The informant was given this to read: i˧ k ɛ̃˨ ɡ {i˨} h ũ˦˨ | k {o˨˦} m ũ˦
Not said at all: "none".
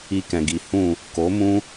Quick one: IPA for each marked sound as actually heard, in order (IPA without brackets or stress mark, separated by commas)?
i˨, o˨˦